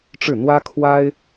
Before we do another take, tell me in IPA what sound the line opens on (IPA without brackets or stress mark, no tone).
ʈ͡ʂ